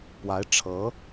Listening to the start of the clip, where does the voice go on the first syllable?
rising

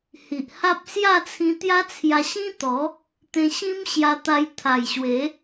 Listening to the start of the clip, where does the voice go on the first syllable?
low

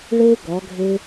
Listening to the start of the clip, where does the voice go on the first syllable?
high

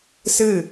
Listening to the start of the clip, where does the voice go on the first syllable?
falling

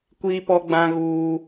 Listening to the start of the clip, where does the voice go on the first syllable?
high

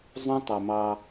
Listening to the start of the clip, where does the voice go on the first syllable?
high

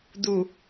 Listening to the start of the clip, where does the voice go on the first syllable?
low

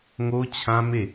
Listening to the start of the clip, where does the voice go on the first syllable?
high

